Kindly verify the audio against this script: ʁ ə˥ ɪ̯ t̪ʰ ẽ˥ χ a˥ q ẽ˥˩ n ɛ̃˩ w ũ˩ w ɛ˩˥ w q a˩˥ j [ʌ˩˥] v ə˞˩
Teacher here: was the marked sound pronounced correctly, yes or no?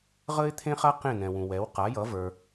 yes